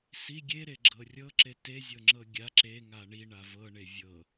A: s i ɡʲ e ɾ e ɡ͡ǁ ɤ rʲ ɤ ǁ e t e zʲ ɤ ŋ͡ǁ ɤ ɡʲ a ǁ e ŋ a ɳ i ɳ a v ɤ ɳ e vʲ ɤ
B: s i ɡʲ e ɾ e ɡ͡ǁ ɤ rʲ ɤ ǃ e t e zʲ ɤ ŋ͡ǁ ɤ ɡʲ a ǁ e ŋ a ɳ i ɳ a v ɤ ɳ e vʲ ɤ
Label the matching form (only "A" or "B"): A